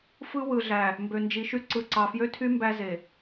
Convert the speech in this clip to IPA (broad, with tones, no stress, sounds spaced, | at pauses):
f ɯ˦ w ɯ˨ ɮ æ˨ | m b ø˨ n d͡ʒ i˨ ʃ y˦ ǀ ɯ˨ ǀ ɑ˨ f j ø˦ tʰ y˦ m b æ˦ z e˨